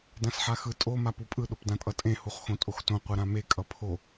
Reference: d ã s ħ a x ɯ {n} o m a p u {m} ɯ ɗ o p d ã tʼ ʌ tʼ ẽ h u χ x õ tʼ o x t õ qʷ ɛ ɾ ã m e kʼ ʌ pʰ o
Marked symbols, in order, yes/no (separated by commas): no, no